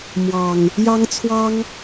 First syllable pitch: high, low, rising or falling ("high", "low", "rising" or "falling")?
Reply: low